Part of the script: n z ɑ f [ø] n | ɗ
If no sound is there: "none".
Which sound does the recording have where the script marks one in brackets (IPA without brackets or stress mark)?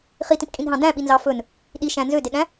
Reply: ɵ